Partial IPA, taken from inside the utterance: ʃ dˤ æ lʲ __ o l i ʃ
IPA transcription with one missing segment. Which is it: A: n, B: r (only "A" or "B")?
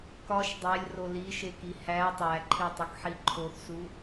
B